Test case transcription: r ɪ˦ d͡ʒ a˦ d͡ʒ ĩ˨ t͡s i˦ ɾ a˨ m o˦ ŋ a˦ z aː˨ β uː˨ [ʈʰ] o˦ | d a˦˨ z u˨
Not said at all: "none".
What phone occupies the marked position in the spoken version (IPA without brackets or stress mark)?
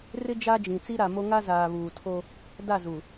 tʰ